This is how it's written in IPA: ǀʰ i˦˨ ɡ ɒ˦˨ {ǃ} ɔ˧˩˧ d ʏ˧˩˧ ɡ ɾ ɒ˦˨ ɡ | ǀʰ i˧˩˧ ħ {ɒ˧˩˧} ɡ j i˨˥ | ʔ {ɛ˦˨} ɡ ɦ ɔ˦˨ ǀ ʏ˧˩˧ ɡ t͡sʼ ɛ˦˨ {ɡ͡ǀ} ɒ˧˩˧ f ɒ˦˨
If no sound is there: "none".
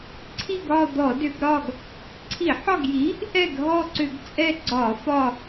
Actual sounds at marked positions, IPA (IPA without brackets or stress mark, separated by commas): d̪, ɒ˦˨, ɛ˦˨, ɡ͡ǀ